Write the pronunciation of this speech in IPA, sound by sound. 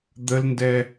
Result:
d̪ ə l n d ɛ

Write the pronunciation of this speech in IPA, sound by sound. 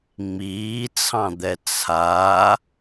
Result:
ŋ͡m iː t͡sʰ ɑ̃ d̪ ɛ t͡sʰ a

